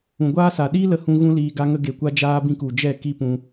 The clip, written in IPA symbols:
ũ˨ ɡʷ aː˦ s a˨ ɗ i˦ l ə˧ h ũ˧ ɣ ũ˦ l iː˧ ɡ a˧ ŋ ə˧ ɡ e˨ kʷ a˧ d͡ʒ aː˦ b ĩ˦˨ k u˨ d͡ʒ ɛ˦˨ k i˦ p ũ˧

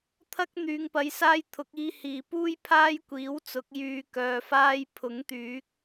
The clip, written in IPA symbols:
t̪ʰ ɐ˧ k̚ n̪ yː˨ ŋ p ɐ˨˧ j s aː˧ j t̪ʰ ʊ˨˥ k̚ iː˧ h iː˨ p uː˥ j pʰ aː˥ j kʷ iː˨˥ w t͡s ʊ˨˥ k̚ j yː˧ k œː˧ f aː˥ j pʰ ʊ˨˥ ŋ t̪ yː˨˥ k̚

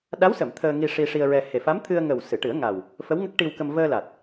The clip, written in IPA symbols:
ɗ a˧˥ w s ə˨˩˨ m t̪ʰ əː˧ ŋ i˧ ʂ i˧ ʂ i˧ ə̯ ɹ ɛ˧ h e˨˩ f a˧˥ m t̪ʰ ɨ˧ ə̯ ŋ ə˨˩ w s ɨ˨˩˨ ʈ ɨ˨˩˦ ə̯ ŋ a˨˩ w | f ə˧˥ w ŋ ə˦˥ k̚ ʈ i˧ w k ə˧ m v əː˧ l a˨˩ t̚

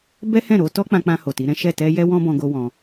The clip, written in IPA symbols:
b ɛ˦ h ɛ̃˦˨ ɾ o˨˦ t ɔ˦ k͡p ã˧ k͡p ã˧ h o˨ t i˨˦ ɾ ɛ̃˦ ʃ ɛ˦˨ t ɛ˧ j ɛ˦ w ɔ̃˦ b ɔ̃˧ ɡ o˧ w ɔ̃˧

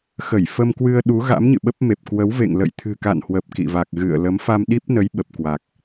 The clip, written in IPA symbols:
x ə˧˩ j f ə˧ m k w ɨ˧ ə̯ ɗ u˨˦ ɣ a̰˧˥ m ɲ ɨ̰˧˨ ɓ ə˦˥ p̚ m e˨˩ p̚ k w ə˨˦ w v ḛ˧˨ ŋ l ə̰˧˨ j t̪ʰ ɨ̤˨˩ k a̰˧˨ n h w ə˨˩ p̚ k ḭ˧˨ v a˨˩ k̚ ɣ ɨ̰˧˨ ə̯ l ə˨˦ m f a˧ m ɗ i˦˥ p̚ n ə˨˦ j ɓ ə˨˩ p̚ k w a˨˩ k̚

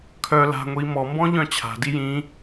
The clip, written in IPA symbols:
kʰ œ l a̤ ŋʷ i m ɔ m b ɔ̃ ʎ œ̃ t͡ɕʰ a̤ d i j ĩ

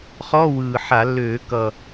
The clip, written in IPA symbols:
χ ɔ˧˥˧ w ɯː˨˩ ħ a˧˩˧ lː øː˧˩˧ k ʌ˨˩

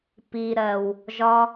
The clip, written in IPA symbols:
p i˨ ɾ ɜ˨ w | ʒ ɒ˧

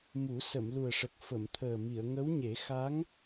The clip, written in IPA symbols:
m u˨˩˦ s ə˨˩˨ m l u˨˩ ə̯ ʂ ə˨˩ k̚ f ə˨˩˨ m t̪ʰ əː˨˩ m i˨˩˨ ə̯ ŋ ə˧˥ w ɲ e˨˩˦ x a˧˥ ŋ

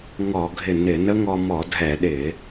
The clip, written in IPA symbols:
ŋ ɔ˧˩˧ ɡʱ ɪ˧˩ n ɪ˧˩˧ n ə˦˥ ŋ ɔ˧ m ɔ˧˩˧ dʱ ɛ˧˩˧ ɗ ɪ˧˩˧

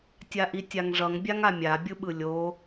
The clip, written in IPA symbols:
tʲ a ʔ i tʲ a ŋ ʐ ʌ ŋ bʲ a ŋ a mʲ a bʲ ɯ ɓ ɯ lʲ o

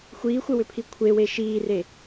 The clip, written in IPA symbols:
xʷ iː xʷ ɘ w ʏ pʰ i kʷʰ e w e ʃ iː r e

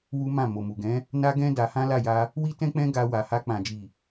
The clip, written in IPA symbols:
w u˦ m ã˦˨ m o˨ m u˨ ɡ ɛ̃˨˦ | n a˦ ɡ ɛ̃˦ d a˧ h ã˦ l a˦˨ j a˧ | w i˦ t ɛ̃˦ k͡p ɛ̃˦ ɡ a˧ w a˨ h a˧ k͡p ã˨ d͡ʒ i˨

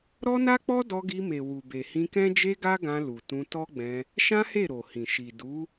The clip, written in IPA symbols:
ɾ ɔ˦ n a˦ k͡p ɔ˦ d ɔ˧ ɡ i˧ m e˨ w u˨ b e˨ h ĩ˧ k ɛ̃˦ d͡ʒ e˦ ɡ a˦ ɡ ã˧ l u˨ t ũ˧ t ɔ˦ ɡ͡b ɛ̃˧ | ʃ ã˦ h e˦˨ ɾ o˨ h ĩ˨ ʃ i˨ d u˨˦

